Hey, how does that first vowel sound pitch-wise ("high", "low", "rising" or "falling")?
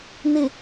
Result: low